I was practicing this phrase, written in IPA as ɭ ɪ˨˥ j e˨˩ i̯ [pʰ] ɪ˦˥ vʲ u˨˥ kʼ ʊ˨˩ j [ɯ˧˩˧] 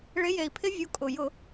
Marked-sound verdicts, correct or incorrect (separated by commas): correct, incorrect